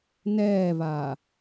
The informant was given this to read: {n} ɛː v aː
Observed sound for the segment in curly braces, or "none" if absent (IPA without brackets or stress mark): n